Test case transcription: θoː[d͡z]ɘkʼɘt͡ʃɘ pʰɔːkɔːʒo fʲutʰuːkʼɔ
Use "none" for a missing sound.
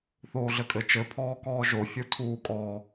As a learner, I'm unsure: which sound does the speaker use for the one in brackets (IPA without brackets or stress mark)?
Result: ɮ